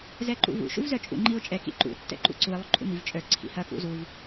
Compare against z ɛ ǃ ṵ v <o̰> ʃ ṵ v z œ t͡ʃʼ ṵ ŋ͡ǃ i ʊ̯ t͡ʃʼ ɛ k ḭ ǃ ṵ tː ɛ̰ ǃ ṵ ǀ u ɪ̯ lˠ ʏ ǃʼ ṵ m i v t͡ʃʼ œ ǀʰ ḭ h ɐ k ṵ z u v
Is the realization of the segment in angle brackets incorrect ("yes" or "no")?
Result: yes